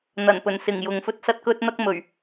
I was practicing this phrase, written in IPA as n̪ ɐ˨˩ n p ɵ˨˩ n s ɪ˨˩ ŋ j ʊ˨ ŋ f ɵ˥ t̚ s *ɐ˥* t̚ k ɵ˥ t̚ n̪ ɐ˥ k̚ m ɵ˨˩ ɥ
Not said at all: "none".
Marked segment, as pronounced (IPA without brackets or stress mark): ɐ˥